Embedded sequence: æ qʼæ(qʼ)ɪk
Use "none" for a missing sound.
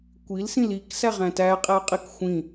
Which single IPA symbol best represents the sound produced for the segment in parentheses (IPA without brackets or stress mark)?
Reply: qʼ